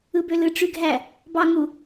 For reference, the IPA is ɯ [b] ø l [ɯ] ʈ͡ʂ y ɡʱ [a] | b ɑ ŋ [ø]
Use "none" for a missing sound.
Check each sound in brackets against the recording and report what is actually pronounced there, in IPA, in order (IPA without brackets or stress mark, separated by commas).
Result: b, ɯ, æ, u